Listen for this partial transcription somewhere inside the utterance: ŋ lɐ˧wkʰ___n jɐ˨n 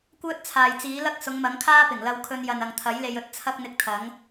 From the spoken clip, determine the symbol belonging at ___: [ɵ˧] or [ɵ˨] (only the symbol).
ɵ˧